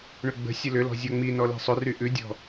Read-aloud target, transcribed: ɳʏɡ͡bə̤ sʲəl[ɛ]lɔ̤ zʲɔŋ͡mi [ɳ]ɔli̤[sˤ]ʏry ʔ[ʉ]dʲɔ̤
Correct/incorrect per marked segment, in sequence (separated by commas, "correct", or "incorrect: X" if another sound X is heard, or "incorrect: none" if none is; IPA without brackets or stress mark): incorrect: ʏ, incorrect: n, correct, correct